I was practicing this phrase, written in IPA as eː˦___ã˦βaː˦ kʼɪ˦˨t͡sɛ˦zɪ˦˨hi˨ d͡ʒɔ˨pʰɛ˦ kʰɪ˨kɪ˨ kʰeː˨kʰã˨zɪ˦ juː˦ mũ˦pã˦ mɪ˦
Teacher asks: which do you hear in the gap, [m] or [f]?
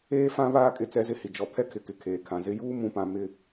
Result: f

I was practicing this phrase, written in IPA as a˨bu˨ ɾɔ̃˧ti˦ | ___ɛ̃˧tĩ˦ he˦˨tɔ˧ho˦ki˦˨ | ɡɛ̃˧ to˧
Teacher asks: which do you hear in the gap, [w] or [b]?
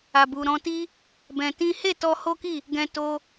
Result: b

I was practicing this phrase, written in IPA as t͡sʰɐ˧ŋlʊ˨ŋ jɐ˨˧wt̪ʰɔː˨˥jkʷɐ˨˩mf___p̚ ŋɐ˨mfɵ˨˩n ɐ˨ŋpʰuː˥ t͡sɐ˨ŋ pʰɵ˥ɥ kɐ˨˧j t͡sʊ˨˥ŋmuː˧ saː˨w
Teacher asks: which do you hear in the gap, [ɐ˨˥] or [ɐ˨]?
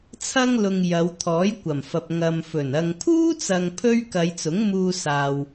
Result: ɐ˨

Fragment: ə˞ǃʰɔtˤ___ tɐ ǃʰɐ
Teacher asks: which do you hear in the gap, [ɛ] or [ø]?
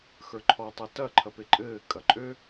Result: ɛ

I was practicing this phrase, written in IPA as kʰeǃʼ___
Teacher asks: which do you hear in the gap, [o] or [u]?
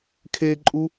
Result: u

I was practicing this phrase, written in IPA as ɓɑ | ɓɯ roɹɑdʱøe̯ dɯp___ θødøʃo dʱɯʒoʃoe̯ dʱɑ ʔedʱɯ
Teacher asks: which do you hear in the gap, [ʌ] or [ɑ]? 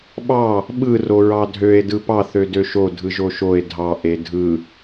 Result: ɑ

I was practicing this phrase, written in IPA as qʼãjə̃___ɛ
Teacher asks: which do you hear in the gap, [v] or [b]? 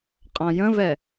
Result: v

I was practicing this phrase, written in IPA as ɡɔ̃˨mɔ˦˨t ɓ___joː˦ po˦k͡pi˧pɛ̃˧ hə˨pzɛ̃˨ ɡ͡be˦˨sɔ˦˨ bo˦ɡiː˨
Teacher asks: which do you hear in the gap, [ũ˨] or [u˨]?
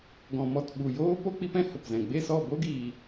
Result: u˨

